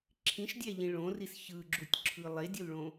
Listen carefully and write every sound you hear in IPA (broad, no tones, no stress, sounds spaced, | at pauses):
ǁʰ ĩ ʃ dʲ æ ʎ ĩ ɭ õ r i s ç ɯ ɡ͡ǁ u tʲ ǁʰ ɯ lˠ e dʲ o l ɭ õ